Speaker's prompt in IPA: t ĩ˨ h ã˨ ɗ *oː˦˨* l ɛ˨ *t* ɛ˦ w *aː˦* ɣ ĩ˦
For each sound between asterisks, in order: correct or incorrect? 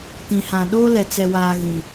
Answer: incorrect, incorrect, correct

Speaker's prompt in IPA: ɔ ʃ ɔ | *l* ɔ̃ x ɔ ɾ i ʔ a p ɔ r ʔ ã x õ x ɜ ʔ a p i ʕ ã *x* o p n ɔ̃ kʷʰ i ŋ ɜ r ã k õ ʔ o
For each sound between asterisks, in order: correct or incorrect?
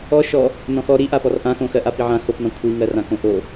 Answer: incorrect, correct

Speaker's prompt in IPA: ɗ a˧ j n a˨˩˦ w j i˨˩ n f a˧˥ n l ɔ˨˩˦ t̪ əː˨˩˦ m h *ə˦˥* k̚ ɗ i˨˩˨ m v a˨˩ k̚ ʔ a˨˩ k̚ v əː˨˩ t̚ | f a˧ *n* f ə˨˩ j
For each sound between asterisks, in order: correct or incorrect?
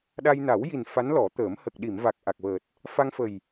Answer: incorrect, incorrect

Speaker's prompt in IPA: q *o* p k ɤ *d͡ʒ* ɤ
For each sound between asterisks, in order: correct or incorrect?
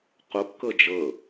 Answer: correct, correct

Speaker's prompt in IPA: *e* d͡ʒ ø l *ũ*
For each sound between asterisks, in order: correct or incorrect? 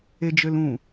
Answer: correct, correct

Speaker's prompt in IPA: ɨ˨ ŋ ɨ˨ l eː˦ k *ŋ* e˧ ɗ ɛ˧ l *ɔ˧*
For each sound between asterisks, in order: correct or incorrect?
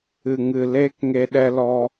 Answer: correct, correct

